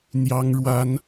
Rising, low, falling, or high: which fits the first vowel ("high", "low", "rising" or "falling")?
high